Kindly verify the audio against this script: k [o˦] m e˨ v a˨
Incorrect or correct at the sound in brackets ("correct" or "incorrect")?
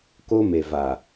correct